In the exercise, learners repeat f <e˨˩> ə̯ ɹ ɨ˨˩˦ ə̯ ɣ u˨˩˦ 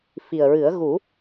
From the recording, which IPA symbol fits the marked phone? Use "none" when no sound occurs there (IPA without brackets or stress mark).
i˨˩